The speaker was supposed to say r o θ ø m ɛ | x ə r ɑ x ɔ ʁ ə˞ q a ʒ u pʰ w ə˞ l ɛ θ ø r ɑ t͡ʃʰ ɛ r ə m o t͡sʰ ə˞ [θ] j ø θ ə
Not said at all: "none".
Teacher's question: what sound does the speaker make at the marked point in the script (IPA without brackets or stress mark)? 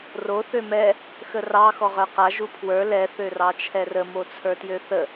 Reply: t